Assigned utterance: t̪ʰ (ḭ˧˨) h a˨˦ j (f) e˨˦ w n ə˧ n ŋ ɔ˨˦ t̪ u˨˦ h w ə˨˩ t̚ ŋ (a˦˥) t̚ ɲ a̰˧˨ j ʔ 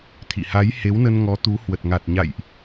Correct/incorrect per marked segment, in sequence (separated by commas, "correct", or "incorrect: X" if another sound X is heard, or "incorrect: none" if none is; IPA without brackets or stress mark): correct, incorrect: h, incorrect: a˨˩